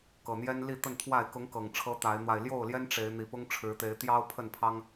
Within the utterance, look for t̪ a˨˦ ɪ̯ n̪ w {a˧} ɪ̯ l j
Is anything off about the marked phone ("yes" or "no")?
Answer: no